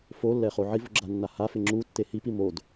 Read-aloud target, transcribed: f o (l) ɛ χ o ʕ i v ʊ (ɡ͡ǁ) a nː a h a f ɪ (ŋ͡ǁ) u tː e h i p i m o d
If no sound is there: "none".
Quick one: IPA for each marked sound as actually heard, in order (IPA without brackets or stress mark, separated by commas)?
lː, ɡ͡ǁ, ŋ͡ǁ